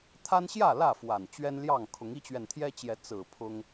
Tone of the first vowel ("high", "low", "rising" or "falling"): high